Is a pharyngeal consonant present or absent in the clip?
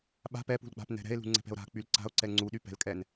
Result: absent